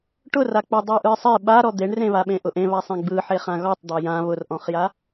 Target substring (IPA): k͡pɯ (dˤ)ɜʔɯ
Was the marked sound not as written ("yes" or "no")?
no